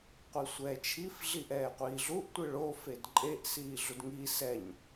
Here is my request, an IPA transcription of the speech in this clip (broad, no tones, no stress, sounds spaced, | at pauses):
qʷ i sʷ ɛː t͡ʃʰ i f ɮ i ʔ ɛː qʷ iː ɮ u ʔ tʷ ɯ ɭ o f e d ǃʼ e ʔ s iː ɮ u d ŋ i s ɛ ɲ